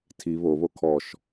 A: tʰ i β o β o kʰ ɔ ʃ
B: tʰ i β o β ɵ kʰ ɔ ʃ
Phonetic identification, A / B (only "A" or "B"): A